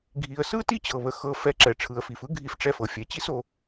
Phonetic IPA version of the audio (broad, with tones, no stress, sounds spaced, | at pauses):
ɡʱ i˨ ə̯ s ɯ˦ t i˦ t͡ɕ ɤ˨ β ə˨ x ɤ˧ f ɛ˧ ǁ ɛ˨ ʈ͡ʂʰ ɯ˨ ə̯ f i˨ f ɯ˦ ɡʱ i˧ f ʈ͡ʂ ɛ˧ f ɤ˨ fʲ ɛ˨ t͡ɕ i˦ s o˧